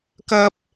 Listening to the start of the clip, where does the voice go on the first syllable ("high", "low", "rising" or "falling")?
high